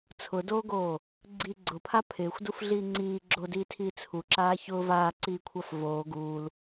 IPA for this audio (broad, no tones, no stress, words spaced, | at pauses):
t͡sʰʊdoːɡoː | ɡ͡ǀi ɡ͡ǀʊpʰa pʰɪːxʷdufɮiː ŋ͡ǀiː ɡ͡ǁodiːtʰiː t͡sʰuǁaː çʊː vaːǀiːkʷʰaf voː ɡuːl